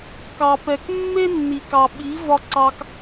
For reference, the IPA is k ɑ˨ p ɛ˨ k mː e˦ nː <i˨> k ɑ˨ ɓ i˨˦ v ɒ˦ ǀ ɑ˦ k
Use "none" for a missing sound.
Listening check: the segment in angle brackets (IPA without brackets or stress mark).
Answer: i˨